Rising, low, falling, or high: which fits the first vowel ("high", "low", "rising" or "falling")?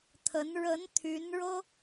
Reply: rising